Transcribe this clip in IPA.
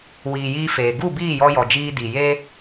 wiː˨jiː˧feː˨ ɡu˦˨biː˦˨jɔ˧jɔ˨ d͡ʒiː˧di˨je˦

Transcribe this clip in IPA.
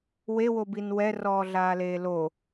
wewobin wɛrɔːɮaːleː lo

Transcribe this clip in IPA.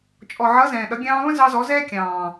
t͡ʃʼɔ˨ʕʌ˨˦ zɛ̃ː˨ɗʌ˨˦ ɡʲɑ̃ː˧βə̃˦ zɑ˧zɔ˨˦zɛː˦ kʲɑ̃ː˨

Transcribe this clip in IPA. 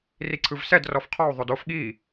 riǀʰɯvsɛd rɔfqʰɔu̯ ðˤodof ɠi

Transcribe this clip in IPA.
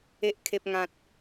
e˦ʔkʰe˦p̚ŋã˦t̚

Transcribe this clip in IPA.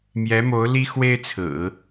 mjɛ˧˥mo˧˥ʊ̯ li˥ xwe˥ɪ̯t͡sʰɹ̩˨˩˦

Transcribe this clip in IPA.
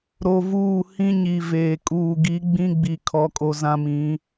ɾo˨vuː˦˨ hĩ˦ɲi˨veː˨ kʼuː˨ɡi˨˦ ɡ͡bĩ˦ɡ͡bi˨ kʰɔ˦kʼo˦ zã˦mĩ˨˦

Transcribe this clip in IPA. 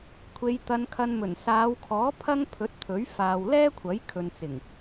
kʷʰe˨˧jt̪ɐ˧nkʰɐ˧n mɵ˨˩nsaː˨˧wkʰɔː˨˥ pʰɐ˥ŋpʰɵ˨˥t̚t̪ʰɵ˨˥ɥ faː˨wlɛː˥kʷʰɐ˨˥j kʰɵ˨nt͡sɪ˨˩ŋ

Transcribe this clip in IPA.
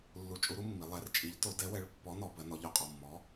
lːu˨˥t͡ʃʼu˨˥ɾu˨˥mːi˩˧ lˠɛ˨˥rt͡ʃʼi˨˥ʎto˨˥ dɛ˨˥wɛ˨˥ɭ pːɔ˨˥nɔ˩˧bɜ˩˧nɔ˩˧ ʎɔ˩˧qʼɔ˩˧˩mːɔ˨˥

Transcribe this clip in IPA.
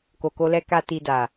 ko˨ko˧lɛ˧ ka˦ti˧da˨

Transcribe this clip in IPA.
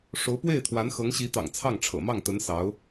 ʂo˧˥ʊ̯pwe˥˩ɪ̯t̪ʰwa˧˥n xɤ˧˥ŋɕi˧˥t̪ɑ̰˨˩ŋ t͡sʰɑ˥˩ŋʈ͡ʂʰɤ̰˨˩ mɑ˥˩ŋt̪ə˧˥n sɑ˧˥ʊ̯

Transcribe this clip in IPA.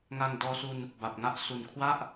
ŋa˧ŋdɔː˧su˧n | ba˨˩p̚ŋa˥˩ʔ su˨˩nkʰwa˥˩ʔ

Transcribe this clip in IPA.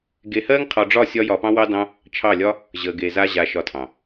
ɡe˧hɜ˦ŋqʰɒ˧ɖ͡ʐɒ˦˨ sʲɒ˦jɒ˧pɑ̃˦ wɑ˦dɑ̃˦ | t͡ʃʰɑ˦˨lʲɒ˦ | ʑə˨ɡe˨ za˦ʑa˧ʃɒ˧tʰɑ̃˨

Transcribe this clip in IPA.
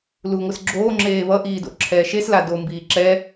luŋʷɯsɡ͡ǁoː ŋ͡ǁeːβʌ ʔiːdo̰ǁʰɛːʃes lado mbiːǁɛ

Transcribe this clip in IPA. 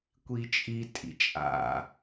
kʷit͡ʃʼi tʼḭt͡ʃʼa̰

